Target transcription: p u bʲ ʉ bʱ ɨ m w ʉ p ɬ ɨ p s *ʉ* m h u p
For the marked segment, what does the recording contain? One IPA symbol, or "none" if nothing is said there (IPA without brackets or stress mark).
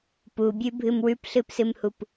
ɨ